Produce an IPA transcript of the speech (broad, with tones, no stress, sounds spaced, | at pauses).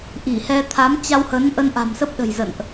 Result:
ʔ i˧˩ h ɛ˧ t̪ʰ a˨˦ m t͡ɕ a˧ w h ə˨˦ n ʔ ə˧ n ʔ a̤˨˩ m s ə˦˥ p̚ ɗ ə̤˨˩ j z ə̰˧˨ n ʔ